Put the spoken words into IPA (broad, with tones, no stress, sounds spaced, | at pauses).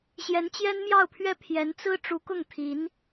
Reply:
ɕ j ɛ˧˥ n t͡ɕ j ɛ˥ n m j ɑ˥˧ ʊ̯ pʰ ɥ ɛ˥˩ pʰ j ɛ˧˥ n t͡s ɹ̩˥ ʈ͡ʂ u˧˥ k ʊ˥˩ ŋ t̪ʰ i˧˥ n